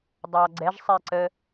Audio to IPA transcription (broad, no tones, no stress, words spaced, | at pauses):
dˤɑɡ͡ǀɛʒsˤɛ ǀə